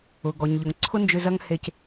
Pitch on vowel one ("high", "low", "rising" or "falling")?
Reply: low